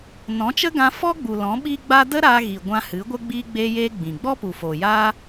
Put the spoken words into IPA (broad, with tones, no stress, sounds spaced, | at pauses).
n ɔ̃˨˦ t͡ʃ ə˦ ɡ ã˧ f ɔ˦ ɡ͡b u˨ l ɔ̃˨˦ ɓ iː˦ ɡ͡b a˦ d ə˦ ɾ a˧ ɣ i˨ ɡʷ ã˧ h ɨ˨˦ ɡʷ ə˦ ɡ͡b iː˧ ɡ͡b e˧ j eː˧ ɡ͡b ĩ˨ ɡ͡b ɔ˦ p u˨ f oː˨ j aː˦